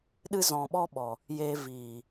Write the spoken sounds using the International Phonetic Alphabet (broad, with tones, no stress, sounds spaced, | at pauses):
ɗ ɨ˧ z ɔ̃˨ ɓ ɔ˧ ɓ ɔ˨ | j eː˨ v iː˨